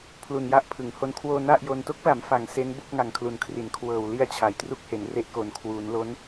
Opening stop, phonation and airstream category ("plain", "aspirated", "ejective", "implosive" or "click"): aspirated